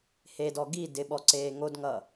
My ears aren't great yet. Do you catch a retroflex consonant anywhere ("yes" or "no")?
no